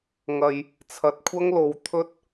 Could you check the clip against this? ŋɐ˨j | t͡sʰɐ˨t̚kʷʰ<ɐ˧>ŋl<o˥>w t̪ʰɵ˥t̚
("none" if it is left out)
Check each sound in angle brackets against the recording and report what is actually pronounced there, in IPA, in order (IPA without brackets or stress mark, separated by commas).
ɐ˥, o˨˧